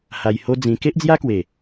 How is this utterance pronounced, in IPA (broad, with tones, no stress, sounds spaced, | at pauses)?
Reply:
h a˧ j h o˦ d͡z ĩ˧ k e˦ ʔ d͡z j a˦ k w e˨˩